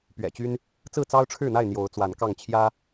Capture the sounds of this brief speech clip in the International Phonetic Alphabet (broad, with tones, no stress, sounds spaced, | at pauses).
p ɥ ɛ̰˨˩ t͡ɕ y˦ n | t͡s ɹ̩˥˨ t͡s ɑ˦ ʊ̯ ʈ͡ʂʰ ɻ̩˥˨ n̪ a˥˨ ɪ̯ n̪ j o˨˦ ʊ̯ t͡s w a˨˦ n k ɑ˥˨ ŋ t͡ɕʰ j ä˦